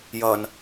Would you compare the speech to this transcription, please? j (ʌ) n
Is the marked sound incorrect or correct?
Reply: correct